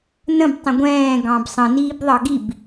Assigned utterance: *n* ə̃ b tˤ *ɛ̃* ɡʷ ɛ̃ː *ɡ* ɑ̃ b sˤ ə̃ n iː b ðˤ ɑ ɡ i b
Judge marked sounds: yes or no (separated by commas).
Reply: yes, no, yes